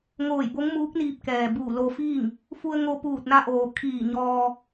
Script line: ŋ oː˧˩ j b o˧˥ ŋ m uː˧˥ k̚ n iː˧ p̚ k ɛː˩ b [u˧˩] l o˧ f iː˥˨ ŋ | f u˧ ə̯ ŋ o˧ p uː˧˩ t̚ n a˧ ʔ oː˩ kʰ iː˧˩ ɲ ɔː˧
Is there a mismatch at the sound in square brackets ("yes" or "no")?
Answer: yes